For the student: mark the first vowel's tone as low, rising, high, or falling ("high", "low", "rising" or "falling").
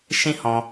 high